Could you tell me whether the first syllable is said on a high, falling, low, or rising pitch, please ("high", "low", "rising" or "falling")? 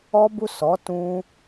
high